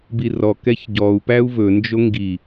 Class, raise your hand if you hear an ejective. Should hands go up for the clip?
no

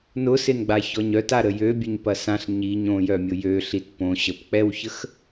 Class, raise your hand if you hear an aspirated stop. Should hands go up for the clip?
no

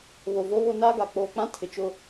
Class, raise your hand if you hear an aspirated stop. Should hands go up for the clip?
yes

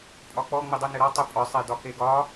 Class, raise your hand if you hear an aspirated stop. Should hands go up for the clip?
no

